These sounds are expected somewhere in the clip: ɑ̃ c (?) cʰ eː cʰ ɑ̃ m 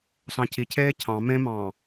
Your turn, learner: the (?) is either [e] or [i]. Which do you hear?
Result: i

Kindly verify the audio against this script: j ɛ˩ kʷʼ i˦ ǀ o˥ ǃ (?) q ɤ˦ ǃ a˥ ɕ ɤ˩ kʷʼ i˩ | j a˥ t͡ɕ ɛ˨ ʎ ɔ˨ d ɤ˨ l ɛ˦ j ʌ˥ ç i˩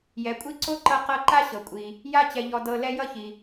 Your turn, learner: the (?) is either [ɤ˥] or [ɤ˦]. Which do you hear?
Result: ɤ˦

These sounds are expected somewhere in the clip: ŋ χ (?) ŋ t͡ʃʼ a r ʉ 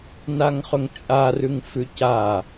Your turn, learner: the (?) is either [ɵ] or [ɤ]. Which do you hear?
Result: ɵ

